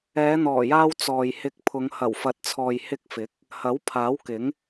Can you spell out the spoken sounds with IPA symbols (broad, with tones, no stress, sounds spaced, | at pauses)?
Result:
ɛː˨˧ n̪ ɔː˨˩ j aː˧ w t͡s ɔː˨ j h ɪ˧ k̚ pʰ ʊ˨˧ ŋ h ɐ˨˩ w f ɐ˨ t̚ t͡sʰ ɔː˨ j h ɪ˧ k̚ f ɪ˨˥ k̚ | h ɐ˨˥ w pʰ aː˨˥ w k ɪ˨˥ ŋ